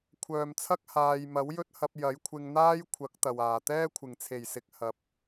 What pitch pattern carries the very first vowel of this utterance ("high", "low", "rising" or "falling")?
low